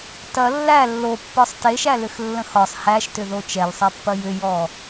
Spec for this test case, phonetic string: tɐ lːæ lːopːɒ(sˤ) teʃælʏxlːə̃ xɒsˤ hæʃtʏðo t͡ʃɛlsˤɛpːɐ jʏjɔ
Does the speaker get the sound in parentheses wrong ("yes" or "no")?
no